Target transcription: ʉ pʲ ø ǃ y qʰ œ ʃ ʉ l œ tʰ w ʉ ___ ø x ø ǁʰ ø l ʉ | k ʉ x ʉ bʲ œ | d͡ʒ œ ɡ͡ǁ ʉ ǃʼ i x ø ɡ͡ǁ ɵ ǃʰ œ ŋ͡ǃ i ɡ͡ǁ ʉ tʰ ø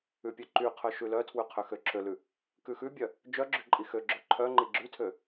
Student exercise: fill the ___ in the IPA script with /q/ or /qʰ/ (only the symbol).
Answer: qʰ